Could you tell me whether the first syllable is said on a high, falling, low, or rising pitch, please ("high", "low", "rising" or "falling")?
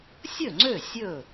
falling